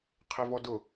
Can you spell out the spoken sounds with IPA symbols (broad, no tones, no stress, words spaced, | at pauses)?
qʰevɔdʊ